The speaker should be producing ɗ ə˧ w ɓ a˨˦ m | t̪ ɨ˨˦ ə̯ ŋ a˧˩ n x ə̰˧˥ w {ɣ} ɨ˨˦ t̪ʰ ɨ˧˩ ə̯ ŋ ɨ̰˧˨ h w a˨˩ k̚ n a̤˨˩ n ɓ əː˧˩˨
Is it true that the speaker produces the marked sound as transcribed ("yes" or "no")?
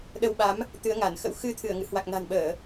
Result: no